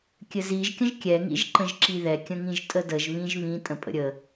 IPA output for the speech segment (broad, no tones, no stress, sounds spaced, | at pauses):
kʲ ɘ z i ʒ kʲ ə̃ ʒ kʲ ɛ ŋ ḭ ʒ ǃ ə̃ ʒ ǁ i ð ɛ kʲ ə̃ ŋ ĩ ʒ tʼ ə d ə ʒ β ĩ ʒ β ĩ tʼ ə̃ pʼ ə̰ ɾʲ ə